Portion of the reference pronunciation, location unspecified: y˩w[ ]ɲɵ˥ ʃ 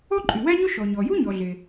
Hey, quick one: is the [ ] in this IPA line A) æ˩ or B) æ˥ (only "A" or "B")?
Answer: B